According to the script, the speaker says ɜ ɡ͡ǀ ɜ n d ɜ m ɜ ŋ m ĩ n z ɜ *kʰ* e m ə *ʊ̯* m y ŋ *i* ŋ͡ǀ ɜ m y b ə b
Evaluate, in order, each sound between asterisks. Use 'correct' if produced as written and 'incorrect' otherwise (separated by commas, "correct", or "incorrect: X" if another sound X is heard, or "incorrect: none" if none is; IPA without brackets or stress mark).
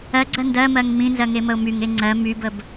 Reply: incorrect: ŋ, correct, incorrect: e